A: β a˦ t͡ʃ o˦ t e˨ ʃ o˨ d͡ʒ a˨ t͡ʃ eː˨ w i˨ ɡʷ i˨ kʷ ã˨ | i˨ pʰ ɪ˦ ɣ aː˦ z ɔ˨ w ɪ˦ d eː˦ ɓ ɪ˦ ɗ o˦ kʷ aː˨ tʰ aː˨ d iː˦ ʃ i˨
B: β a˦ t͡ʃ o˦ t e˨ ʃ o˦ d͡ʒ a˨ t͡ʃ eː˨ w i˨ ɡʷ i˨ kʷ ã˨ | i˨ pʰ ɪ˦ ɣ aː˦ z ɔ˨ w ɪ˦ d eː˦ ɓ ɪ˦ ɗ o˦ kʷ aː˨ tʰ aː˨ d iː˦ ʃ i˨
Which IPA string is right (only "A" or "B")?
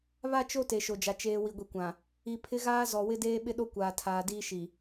A